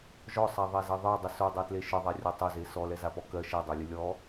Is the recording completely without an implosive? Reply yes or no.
yes